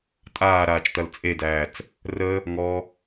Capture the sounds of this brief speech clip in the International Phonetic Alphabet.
tʼ aː ɾ aː t͡ʃ t̪ ɐ l t͡sʼ e d æː t͡s | r ə | ŋ ɔ

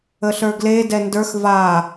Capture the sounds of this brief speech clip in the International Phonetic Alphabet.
ə ɬ ə˞ ɡ l e d ɛ n d ə˞ x v a

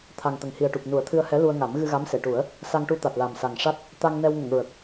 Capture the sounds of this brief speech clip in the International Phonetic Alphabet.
t̪ʰ a˨˩ ŋ t̪ ə˨˩ ŋ h i˨˩ ə̯ ʈ u˨˩ p̚ n u˨˩˦ ə̯ t̪ʰ ɨ˧ ə̯ h ɛ˧˥ l u˧ ə̯ ŋ a˨˩˦ m ɣ ɨ˧ ɣ a˧˥ m s e˨˩˨ ʈ u˨˩˦ ə̯ | s a˧ ŋ ʈ u˧ t̪ a˨˩ t̚ l a˨˩ m s a˨˩ ŋ ʂ a˦˥ t̚ | t̪ a˧ ŋ n ɛ˧ w ŋ ə˨˩˨ ŋ ɹ ə˨˩ k̚

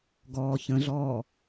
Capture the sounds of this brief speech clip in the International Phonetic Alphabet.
ɡ ɔː ç ə̃ ɮ ɔː

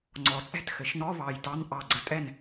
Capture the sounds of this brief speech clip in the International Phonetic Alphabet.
ŋ͡ǀ ɔ˩˧ t͡sʼ ɛ̤˥˩ t x ɘ˩˧ ʃ n ɔ˧˥˧ β ɑ˧˩ j t ɑ˧˥˧ n ʔ ɑ˧˩ ɡ͡ǀ ə˧˩ tʼ ɛ˥˩ n

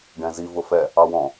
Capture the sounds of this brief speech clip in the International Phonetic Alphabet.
ɖ ɛ̃ z i v ʊ f ɛ | ɑ w ɔ̃

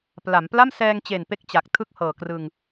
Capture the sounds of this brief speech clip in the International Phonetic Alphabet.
p l a˩˦ m p l a˥˩ m s ɛː˧ ŋ t͡ɕ e˨˩ n p e˦˥ k̚ t͡ɕ a˨˩ k̚ tʰ ɯ˥˩ k̚ h ɤː˨˩ k r ɯ˧ ŋ

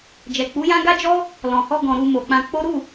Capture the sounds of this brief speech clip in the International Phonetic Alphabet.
d͡ʒ ɛ˨ k͡p u˨˦ j ã˦ ɡ a˦ d͡ʒ ɔ˦ | l ɔ̃˨ h ɔ˧ ɡ ɔ̃˨ ɾ u˧ m o˨ k͡p ã˧ k͡p o˦ ɾ u˦˨

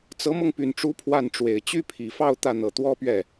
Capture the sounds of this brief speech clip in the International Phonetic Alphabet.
t͡s ɤ˧˥ m ɤ˧ ŋ p y˨˩ n ʈ͡ʂ u˧˥ pʰ w a˥˩ n ʈ͡ʂ w e˨˩ ɪ̯ t͡ɕ y˥ pʰ i˨˩ f ɑ˥˧ ʊ̯ t̪ ä˥˩ n̪ ɤ˨˩ t̪ w ɔ˥ p ɥ ɛ˥˩

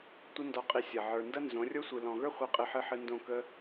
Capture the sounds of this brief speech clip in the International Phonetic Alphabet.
tʷ ə˧ n d ɔ˨ qʼ i˨ sʲ ɐ˨ ʕ ə˞˨ n d ɐ˦ n z õ˨˦ rʲ o˦ sʷ ɨ˨ l ɔ̃˨ ɣ ə˞˦ χʷ i˧ qʼ ɨ˧ ħ ɨ˧ ħ ɨ˧ n d õ˦˨ k ə˦

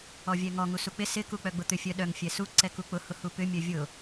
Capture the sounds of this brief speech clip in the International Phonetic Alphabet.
ɔ vʲ ɛ ŋ ɔ ŋ u s u k͡p ɪ s ɪ k u k͡p œ ɡ͡b ʊ t̪ ʏ fʲ œ ɗ œ ŋ fʲ ɛ s u ǀ ɛ k u k͡p ʊ h ʊ h u p ʏ mʲ œ vʲ ʊ

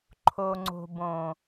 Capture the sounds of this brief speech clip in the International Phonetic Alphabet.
ǃʰ o˨ ŋ͡ǀ o̤˨ b õ˨

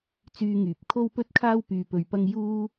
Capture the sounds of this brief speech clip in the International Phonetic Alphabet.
t͡s yː˧ ŋ yː˨ p̚ kʰ o˥ w p ɵ˥ t̚ kʰ aː˥ w p yː˧ p ɵ˧ ɥ p ɐ˥ ŋ j uː˥

